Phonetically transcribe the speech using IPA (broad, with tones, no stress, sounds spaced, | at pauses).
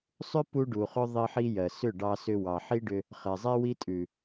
sˤ ʏ˦ p u˧ ɖ u˨ χ ʏ˦ ðˤ i˧ ħ i˧ j ɜ˨ s ʏ˦˨ ɖ ɑ˧ s ʏ˧ w ɑ˨ ħ i˦ ɖ ʏ˧ | χ ɛ˨ zˤ e˦ w i˦ tʼ ʉ˨